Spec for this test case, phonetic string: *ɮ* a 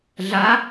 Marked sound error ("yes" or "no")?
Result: no